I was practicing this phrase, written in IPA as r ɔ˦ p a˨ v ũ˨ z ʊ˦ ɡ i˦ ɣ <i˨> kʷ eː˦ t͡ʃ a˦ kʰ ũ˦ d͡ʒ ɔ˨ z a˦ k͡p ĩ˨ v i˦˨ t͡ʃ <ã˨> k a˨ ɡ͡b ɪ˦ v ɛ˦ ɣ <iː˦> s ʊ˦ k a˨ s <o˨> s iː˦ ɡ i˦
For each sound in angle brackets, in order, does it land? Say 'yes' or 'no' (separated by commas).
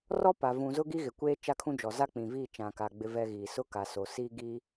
no, yes, no, yes